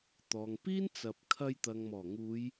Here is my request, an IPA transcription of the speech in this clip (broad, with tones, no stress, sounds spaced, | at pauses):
t̪ ɔː˨ ŋ p iː˥ n t͡s ɐ˨ p̚ kʰ ɐ˧ j t̪ ɐ˨ ŋ m ɔː˨˩ ŋ uː˨˧ j